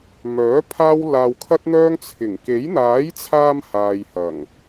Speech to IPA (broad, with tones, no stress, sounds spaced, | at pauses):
m œː˨˥ pʰ aː˥ w l aː˧ w kʰ ɐ˥ t̚ n̪ œː˥ ŋ t͡sʰ ɪ˨˩ ŋ k e˨˥ j n̪ aː˨˥ j t͡sʰ aː˧ m h aː˨ j h ɐ˨˩ ŋ